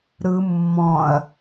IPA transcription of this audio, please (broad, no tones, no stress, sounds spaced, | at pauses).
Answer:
ɾ ɯ mː ɔ̃ ɐ̯